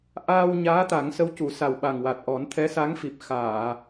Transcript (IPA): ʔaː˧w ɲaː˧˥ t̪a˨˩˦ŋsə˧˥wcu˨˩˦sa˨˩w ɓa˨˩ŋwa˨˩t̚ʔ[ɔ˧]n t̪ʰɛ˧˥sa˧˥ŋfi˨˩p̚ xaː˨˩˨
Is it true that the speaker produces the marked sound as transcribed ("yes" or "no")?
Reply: no